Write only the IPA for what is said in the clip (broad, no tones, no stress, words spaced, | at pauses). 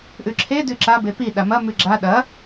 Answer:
ʔʉǁʰe dʉǁa bepi ɗamɐ mʉɡ͡ǁa ɗɐ